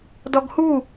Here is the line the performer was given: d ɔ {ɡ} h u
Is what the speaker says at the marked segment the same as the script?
yes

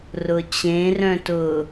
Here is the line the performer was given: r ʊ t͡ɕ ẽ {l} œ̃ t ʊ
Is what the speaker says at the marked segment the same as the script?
no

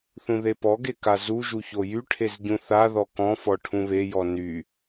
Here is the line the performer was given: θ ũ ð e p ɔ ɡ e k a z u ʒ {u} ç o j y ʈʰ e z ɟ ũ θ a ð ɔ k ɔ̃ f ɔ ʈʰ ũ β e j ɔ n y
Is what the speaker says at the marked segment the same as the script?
yes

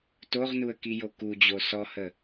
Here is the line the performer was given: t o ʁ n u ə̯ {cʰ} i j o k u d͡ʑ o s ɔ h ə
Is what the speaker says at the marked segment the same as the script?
no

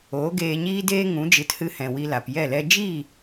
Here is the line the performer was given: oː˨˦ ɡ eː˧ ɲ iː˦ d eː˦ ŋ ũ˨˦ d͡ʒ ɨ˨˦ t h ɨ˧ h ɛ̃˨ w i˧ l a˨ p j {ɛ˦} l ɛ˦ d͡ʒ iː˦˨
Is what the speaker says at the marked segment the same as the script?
no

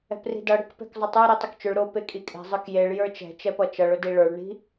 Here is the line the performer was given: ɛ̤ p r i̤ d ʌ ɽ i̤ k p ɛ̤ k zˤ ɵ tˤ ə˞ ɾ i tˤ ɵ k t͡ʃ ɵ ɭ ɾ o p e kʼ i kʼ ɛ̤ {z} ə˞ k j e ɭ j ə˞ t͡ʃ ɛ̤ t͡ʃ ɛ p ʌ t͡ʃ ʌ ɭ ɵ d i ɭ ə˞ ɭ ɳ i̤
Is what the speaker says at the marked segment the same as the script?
no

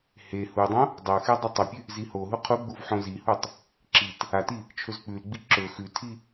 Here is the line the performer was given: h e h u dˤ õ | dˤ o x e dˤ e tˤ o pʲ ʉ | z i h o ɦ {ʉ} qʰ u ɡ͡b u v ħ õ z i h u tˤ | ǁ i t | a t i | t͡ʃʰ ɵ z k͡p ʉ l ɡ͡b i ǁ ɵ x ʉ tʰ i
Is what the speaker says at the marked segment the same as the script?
no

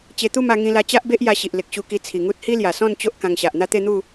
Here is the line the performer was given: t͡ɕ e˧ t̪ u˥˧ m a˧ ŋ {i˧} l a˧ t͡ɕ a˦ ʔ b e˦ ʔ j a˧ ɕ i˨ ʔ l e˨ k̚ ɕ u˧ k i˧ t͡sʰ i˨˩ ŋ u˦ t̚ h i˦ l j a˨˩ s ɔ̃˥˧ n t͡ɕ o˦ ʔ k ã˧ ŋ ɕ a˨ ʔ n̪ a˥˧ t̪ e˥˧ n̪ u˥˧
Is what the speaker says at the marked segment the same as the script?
no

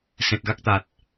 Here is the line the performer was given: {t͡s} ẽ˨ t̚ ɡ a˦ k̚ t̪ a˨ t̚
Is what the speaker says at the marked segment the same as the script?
no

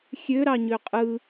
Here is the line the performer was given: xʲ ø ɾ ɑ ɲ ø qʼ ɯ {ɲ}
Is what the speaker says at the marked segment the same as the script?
no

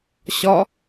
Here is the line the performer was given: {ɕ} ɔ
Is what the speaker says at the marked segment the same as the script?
yes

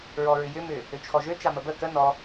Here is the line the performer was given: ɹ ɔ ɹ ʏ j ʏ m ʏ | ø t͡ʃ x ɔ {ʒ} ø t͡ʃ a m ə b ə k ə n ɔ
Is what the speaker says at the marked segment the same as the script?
yes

